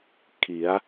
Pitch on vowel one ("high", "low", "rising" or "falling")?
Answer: rising